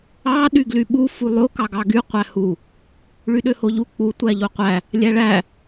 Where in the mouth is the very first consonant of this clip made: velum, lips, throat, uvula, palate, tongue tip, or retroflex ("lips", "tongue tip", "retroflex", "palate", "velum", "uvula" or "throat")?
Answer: tongue tip